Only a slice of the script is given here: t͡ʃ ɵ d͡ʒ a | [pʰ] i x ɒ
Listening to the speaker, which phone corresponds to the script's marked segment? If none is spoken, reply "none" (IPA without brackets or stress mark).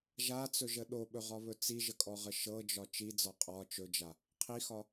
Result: qʰ